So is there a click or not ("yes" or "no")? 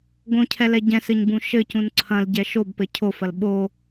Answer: yes